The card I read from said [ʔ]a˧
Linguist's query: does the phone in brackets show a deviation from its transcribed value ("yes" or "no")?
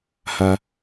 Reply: yes